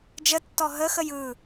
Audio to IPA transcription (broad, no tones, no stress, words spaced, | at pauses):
d͡ʒətːɔ ɦəxəj ɯ